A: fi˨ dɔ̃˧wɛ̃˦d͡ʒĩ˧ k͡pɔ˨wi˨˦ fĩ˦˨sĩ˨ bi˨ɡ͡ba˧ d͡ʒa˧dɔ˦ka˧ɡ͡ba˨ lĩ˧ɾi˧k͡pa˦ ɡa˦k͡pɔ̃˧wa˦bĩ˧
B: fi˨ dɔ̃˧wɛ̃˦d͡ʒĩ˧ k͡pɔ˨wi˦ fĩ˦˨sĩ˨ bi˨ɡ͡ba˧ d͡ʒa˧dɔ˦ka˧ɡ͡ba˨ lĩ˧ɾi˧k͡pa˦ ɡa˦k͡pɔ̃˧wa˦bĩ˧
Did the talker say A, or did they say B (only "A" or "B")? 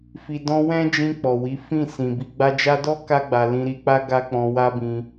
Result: A